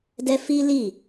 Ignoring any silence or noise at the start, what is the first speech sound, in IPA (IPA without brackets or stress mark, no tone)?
d